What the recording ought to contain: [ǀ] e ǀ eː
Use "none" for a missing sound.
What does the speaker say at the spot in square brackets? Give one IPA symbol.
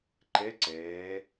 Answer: ǃ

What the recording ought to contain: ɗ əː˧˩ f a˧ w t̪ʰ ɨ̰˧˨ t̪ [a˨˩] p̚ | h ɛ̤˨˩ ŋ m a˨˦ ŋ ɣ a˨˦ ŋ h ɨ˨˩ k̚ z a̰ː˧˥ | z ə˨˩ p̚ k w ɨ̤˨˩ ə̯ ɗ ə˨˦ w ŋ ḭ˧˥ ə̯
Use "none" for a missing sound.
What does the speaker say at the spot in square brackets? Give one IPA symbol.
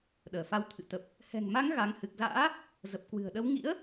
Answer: ə˨˩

